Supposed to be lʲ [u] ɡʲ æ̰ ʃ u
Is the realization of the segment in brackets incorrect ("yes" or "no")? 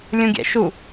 yes